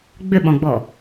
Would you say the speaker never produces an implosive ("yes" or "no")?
no